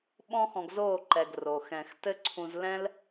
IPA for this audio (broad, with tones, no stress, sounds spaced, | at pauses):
ɓ ɔ̃˦ x ɔ̃˧ ɡ z oː˦˨ ǃ ɛ˨ ɡ r o˨ x ɛ̃˨ x t ɘ˦ ǀʰ ũ˧ z l ɛ̃˦ l